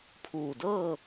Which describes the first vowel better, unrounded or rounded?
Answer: rounded